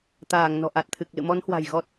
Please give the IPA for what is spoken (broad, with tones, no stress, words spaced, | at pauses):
t̪aː˧˩ŋ nɔ̤˨˩ʔa˨˩t̚t̪ʰɨ˨˩k̚lɨ̰˧˨ mɔ˨˦nhwa̤˨˩j ɣɔ˦˥t̚